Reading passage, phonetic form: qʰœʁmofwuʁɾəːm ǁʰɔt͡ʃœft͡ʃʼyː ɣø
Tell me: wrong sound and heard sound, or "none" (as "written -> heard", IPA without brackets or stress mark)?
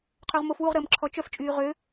ɣ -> ʁ